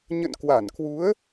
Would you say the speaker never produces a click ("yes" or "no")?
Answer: yes